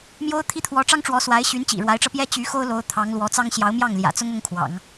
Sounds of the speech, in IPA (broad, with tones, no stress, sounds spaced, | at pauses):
m j o˥ ʊ̯ t̪ʰ i˥ t̪ʰ w ɔ˧˥ ʈ͡ʂ ɑ˥ ŋ ʈ͡ʂ w ɔ˧˥ s w a˧˥ ɪ̯ ɕ y˧˥ n t͡ɕ ḭ˨˩ ɻ w a˧˥ ɪ̯ ʈ͡ʂ ɤ˧ p j ɛ˥ t͡ɕ y˧˥ x o˥ ʊ̯ l o˧˥ ʊ̯ t̪ʰ ɑ˧˥ ŋ l w ɔ˧˥ t͡s ɑ˥ ŋ ɕ j ɑ˧˥ ʊ̯ m j ɑ˥˩ ŋ l j ä̰˨˩ t͡s ʊ˥ ŋ ʊ˥ ŋ kʰ w ɑ̰˨˩˦ ŋ